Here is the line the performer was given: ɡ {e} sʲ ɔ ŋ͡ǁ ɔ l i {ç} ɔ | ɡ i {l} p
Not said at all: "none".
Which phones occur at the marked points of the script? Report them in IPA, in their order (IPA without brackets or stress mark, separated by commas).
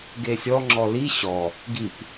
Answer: e, ɕ, none